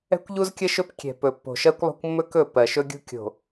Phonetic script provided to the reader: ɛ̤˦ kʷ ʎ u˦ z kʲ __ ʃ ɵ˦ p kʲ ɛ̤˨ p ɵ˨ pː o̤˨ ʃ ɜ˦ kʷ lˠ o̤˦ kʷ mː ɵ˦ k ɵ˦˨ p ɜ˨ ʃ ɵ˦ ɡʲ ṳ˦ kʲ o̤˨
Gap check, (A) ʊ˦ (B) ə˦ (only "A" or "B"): B